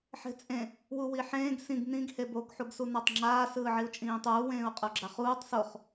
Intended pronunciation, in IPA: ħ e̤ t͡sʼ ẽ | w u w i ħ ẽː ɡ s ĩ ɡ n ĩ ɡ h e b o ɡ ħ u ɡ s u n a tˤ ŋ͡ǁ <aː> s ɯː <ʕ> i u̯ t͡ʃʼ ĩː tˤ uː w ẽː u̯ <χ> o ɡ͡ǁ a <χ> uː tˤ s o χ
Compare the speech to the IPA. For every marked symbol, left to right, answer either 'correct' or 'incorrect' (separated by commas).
correct, correct, incorrect, correct